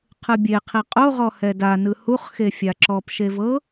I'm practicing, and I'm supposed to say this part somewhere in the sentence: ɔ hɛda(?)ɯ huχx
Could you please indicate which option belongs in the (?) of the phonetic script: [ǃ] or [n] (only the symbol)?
n